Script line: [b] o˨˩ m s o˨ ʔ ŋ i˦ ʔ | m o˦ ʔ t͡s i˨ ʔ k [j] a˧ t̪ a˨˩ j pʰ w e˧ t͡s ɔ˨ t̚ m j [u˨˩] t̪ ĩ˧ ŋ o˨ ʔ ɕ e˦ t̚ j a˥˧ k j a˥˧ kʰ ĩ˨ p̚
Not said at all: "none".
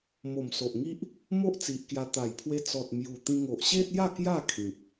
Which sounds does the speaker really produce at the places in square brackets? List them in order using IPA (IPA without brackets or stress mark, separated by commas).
m, j, u˨˩